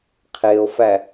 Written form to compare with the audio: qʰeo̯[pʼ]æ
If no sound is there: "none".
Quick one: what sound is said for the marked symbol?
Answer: f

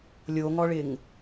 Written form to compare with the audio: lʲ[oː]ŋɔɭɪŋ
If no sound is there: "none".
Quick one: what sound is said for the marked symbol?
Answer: o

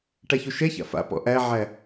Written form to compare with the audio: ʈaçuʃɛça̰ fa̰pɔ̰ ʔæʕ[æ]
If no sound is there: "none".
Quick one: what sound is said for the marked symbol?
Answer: æ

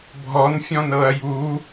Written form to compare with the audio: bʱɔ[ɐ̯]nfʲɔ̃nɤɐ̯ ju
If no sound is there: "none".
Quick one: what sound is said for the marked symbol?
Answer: none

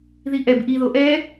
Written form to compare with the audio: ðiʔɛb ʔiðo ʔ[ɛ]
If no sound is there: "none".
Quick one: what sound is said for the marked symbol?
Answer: ɛ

